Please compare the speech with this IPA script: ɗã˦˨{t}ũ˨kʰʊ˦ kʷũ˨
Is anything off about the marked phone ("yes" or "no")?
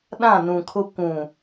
yes